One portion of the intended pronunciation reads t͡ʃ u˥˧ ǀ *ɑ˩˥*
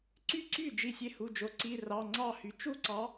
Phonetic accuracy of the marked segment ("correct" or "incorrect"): correct